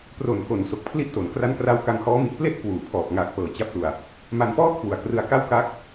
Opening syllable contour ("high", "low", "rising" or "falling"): low